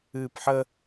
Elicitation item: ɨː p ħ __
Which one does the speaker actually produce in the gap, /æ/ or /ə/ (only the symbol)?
ə